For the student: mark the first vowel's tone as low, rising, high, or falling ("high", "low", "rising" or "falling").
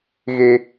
low